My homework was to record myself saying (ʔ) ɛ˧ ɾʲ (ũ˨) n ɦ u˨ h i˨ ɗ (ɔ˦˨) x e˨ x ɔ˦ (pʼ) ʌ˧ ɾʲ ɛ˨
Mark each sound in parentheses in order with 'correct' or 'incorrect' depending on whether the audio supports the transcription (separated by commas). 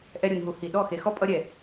correct, incorrect, correct, correct